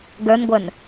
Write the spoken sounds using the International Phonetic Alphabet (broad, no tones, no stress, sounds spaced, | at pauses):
ɡ ə˞ n ɡʷ ə˞ n